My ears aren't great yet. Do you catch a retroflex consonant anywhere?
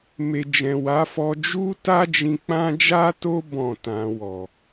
no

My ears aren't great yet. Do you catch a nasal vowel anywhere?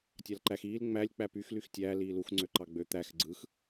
no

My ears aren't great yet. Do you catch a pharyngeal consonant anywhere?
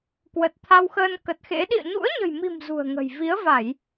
no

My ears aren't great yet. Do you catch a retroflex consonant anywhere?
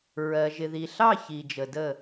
no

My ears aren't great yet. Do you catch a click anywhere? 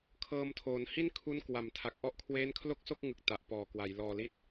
no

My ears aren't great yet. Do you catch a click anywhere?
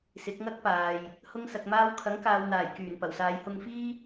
no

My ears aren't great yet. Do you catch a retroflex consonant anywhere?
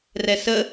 no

